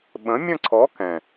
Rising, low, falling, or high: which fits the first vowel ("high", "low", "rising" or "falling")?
rising